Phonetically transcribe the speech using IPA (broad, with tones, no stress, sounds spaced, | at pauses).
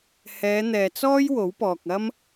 h ɛː˨˧ n̪ ɛː˨ t͡s ɔː˥ j w o˨˥ w p ɔː˨ k̚ ɐ˥ m